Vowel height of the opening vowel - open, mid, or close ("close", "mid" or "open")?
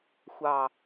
open